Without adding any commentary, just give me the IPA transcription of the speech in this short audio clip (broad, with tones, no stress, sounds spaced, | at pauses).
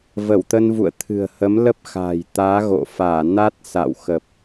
v ə˧˩ w t̪ ə˧ n v ṵ˧˨ ə̯ t̪ʰ ɨ̤˨˩ ə̯ h ə˨˦ m l ə˦˥ p̚ x a̤˨˩ j t̪ aː˨˦ ɣ o̰˧˨ f aː˧˩ n a˦˥ t̚ s a̰˧˨ w x ə˨˩ p̚